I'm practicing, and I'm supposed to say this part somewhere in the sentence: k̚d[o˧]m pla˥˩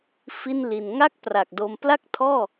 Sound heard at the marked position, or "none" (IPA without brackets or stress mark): o˧